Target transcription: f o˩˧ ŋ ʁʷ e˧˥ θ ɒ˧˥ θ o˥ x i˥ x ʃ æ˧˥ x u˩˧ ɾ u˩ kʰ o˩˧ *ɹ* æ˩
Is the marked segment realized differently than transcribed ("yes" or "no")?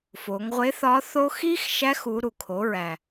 no